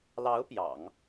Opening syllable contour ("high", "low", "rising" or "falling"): rising